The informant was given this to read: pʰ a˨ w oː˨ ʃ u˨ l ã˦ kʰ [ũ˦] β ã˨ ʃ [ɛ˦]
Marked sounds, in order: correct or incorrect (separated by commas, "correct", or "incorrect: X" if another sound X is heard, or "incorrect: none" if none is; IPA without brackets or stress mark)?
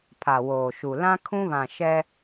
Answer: correct, correct